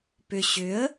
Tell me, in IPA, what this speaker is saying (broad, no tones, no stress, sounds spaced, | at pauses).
p ʏ ɕ ʏ ə̯